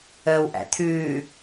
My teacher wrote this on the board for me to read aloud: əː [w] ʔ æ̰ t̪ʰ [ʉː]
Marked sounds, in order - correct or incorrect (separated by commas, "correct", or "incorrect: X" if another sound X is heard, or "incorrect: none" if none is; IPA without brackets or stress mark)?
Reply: correct, correct